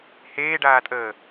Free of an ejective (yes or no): no